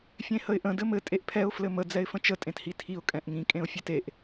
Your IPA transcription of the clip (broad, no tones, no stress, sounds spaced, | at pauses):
fʲ ẽ h ə ɪ̯ ʔ ə̃ d ɘ m ɘ tʼ e ʔ pʰ ɛ ʊ̯ f l ɘ m ə d͡z ɛ ɪ̯ f ə̃ t͡ʃ ə tʼ ẽ t h i tʰ i ʊ̯ kʼ ɛ̃ ʔ ŋ ĩ kʼ ẽ ʊ̯ fʲ e t e ʔ